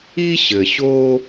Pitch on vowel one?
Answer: high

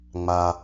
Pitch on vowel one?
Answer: low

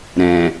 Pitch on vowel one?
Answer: low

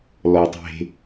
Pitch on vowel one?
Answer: low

